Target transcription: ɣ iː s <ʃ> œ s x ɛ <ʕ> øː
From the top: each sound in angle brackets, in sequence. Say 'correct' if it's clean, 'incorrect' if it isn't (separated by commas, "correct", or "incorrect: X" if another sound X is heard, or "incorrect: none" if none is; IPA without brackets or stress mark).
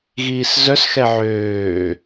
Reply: incorrect: z, correct